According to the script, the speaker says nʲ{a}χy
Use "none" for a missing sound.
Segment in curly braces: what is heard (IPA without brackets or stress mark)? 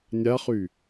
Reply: a